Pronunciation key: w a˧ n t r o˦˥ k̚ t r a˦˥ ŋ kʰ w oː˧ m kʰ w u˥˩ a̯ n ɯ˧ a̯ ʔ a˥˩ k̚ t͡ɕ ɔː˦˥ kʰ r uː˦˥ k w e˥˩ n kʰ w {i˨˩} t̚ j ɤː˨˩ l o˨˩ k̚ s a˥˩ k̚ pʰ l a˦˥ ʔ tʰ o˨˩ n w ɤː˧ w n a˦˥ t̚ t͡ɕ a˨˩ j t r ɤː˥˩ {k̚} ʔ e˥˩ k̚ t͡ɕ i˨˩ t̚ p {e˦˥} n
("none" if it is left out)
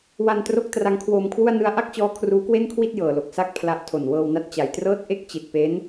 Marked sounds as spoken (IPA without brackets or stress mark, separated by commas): i˥˩, t̚, e˦˥